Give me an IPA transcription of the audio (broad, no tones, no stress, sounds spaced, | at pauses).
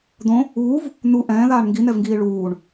d̪ õ | uː v | n̪ u ʔ ɛ̃ː ð aː ɳ ŋ ɡ i n̪ ɛ v ŋ ɡ iː ɭ uː ɳ